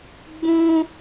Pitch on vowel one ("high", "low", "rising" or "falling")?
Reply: high